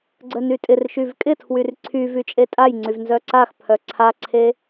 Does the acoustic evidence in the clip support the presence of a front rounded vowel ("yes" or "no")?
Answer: yes